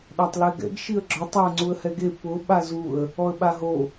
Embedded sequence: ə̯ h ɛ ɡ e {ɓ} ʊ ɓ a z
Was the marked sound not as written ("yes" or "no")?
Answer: yes